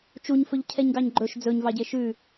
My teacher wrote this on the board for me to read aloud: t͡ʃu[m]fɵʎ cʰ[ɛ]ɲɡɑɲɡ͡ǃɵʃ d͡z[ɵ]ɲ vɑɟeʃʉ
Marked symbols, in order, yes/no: no, yes, yes

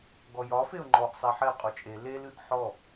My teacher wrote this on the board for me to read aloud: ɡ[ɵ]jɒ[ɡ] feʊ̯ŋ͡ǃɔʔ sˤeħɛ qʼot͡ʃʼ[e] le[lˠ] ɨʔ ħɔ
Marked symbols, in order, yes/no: no, no, yes, no

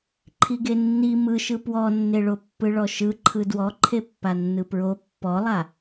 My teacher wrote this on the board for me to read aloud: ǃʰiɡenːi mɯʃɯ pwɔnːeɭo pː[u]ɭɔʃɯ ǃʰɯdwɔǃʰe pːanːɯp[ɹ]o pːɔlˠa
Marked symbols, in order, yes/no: no, yes

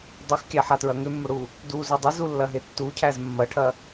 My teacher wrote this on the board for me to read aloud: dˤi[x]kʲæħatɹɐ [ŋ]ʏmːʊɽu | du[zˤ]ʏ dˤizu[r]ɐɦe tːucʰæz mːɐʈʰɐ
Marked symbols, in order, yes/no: yes, yes, no, no

